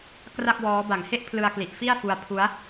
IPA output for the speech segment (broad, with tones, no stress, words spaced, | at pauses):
kra˥˩k̚wɔː˦˥ ba˨˩ŋhe˥˩ʔ pʰlɯ˧a̯kli˨˩ʔ fi˥˩a̯fu˧a̯pʰu˦˥a̯